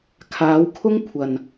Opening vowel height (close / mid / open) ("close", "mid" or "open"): open